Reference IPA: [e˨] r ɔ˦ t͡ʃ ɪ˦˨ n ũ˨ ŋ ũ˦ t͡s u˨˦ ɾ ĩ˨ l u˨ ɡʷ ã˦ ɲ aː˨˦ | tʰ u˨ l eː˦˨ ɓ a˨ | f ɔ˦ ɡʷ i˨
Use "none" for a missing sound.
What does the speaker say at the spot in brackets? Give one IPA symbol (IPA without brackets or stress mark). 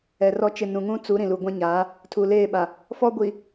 ɛ˨